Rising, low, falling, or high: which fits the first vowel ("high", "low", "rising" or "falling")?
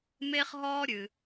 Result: high